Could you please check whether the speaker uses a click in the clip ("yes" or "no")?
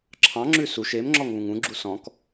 yes